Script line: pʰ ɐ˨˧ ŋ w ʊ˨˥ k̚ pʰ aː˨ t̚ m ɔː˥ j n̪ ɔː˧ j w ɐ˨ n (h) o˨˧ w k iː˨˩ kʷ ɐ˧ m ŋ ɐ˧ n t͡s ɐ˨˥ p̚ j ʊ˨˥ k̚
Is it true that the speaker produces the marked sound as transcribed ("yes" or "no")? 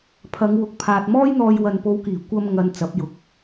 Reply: no